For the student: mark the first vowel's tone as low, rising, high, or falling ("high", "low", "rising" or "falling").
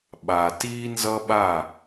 low